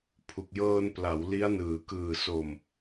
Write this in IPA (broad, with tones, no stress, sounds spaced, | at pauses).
pʰ u˨˩ k̚ j ɤː˧ n p l a˩˦ w l i˦˥ a̯ n ɯː˩˦ k ɯː˨˩ s o˨˩ m